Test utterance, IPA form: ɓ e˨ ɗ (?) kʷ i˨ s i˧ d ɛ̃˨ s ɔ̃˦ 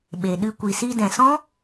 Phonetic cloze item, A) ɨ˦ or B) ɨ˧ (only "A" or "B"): B